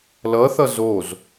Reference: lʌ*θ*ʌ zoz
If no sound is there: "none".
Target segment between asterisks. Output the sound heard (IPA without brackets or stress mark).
θ